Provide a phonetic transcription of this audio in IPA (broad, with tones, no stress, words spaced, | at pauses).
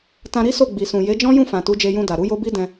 tã˧ɾi˦ so˦˨ ɡ͡bi˨sũ˨ je˨˦d͡ʒɔ̃˦ jũ˦˨fã˨ tu˨˦d͡ʒe˧jũ˧da˨ ɾu˨˦jo˦bi˦ dɛ̃˧